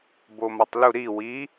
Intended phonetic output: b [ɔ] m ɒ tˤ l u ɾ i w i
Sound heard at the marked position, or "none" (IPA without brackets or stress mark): o